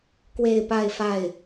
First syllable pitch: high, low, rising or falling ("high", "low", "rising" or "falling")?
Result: falling